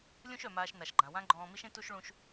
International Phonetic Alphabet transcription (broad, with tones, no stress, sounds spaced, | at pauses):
lʲ ũ˥ ʃ œ˩ m aː˧ ʃ n a˩ ʃ ɡ͡ǃ ã˩ w ã˥ ɡ͡ǃ ɔ̃ː˧ m i˥ ʃ ẽ˥ t u˥ ʃ ɭ ũ˧ ʃ